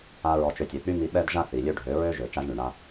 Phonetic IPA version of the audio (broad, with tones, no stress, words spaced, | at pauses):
a˦ɹɔ˧t͡ʃø˧ tʲø˨k͡py˦mi˧ ɓɛ˦dʒa˦ θi˨lʲø˦ɖʱø˨˦ ɹø˦ʒø˨ t͡ʃa˦ʒɳy˨ɳa˦